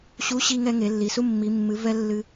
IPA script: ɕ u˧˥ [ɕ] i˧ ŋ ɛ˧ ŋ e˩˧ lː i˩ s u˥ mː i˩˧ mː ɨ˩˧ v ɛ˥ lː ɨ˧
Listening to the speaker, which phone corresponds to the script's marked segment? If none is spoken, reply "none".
ɕ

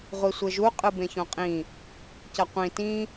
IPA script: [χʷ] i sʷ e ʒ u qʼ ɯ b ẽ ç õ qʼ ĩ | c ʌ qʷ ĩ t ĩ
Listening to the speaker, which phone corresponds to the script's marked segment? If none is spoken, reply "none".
ʁʷ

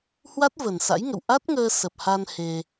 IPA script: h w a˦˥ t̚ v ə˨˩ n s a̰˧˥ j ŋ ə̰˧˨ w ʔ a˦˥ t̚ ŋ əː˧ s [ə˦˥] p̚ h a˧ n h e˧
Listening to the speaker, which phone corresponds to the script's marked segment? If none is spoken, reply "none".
ə˨˩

